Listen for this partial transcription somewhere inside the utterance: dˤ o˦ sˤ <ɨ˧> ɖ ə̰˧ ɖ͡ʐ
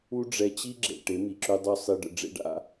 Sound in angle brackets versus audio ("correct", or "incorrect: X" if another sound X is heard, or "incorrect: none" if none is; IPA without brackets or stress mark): incorrect: i˧